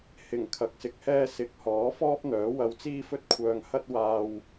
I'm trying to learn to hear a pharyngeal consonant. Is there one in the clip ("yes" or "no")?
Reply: no